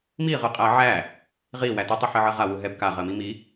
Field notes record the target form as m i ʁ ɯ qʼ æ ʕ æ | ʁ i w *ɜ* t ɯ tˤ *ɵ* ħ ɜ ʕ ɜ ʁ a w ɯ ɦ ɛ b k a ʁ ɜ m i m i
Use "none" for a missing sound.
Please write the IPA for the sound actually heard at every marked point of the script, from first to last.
æ, ɤ

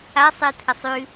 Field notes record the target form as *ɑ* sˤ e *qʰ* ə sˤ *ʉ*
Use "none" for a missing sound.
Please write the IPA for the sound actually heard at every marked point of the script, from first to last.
a, t̪ʰ, ʉ

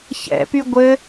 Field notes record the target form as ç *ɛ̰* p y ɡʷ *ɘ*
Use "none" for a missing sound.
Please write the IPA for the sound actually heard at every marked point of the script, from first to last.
ɛ̰, ɘ

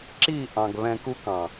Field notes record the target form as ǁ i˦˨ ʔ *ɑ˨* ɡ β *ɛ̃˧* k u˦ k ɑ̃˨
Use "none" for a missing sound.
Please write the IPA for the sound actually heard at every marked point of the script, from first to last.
ɑ̃˨, ɛ̃˧

